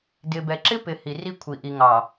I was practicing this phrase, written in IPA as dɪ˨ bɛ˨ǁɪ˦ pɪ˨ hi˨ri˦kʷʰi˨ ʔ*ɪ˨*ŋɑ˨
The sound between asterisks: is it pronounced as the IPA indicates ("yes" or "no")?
no